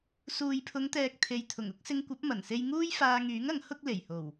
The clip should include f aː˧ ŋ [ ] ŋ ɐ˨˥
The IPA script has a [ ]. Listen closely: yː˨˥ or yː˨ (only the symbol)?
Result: yː˨˥